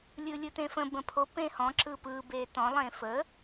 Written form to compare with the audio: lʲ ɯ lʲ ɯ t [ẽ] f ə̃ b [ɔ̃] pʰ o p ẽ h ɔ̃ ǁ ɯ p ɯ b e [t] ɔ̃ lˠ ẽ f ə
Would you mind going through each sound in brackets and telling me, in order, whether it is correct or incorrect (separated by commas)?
correct, incorrect, correct